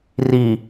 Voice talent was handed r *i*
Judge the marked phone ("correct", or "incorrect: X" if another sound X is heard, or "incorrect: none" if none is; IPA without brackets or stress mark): correct